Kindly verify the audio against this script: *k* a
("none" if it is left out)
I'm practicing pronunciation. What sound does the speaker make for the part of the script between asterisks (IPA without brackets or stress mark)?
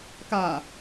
k